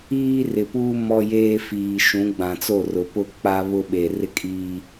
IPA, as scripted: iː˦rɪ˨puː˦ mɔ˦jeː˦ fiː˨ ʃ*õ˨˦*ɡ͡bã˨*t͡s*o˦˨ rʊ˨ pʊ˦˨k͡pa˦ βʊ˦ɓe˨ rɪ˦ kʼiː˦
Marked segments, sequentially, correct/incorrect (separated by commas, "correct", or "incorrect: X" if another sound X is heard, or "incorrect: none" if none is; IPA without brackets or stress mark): incorrect: ũ˨˦, correct